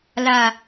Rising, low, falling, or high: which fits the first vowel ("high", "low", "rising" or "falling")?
low